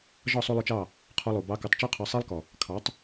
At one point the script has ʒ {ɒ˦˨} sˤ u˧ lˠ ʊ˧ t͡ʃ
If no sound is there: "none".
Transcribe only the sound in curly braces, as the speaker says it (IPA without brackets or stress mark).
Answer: ɒ˦˨